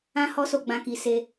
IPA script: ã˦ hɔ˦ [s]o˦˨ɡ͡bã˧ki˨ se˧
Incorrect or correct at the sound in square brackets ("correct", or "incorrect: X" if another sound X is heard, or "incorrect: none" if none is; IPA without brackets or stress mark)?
correct